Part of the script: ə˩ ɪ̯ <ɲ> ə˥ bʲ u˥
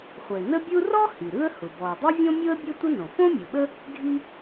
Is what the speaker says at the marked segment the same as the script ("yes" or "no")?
no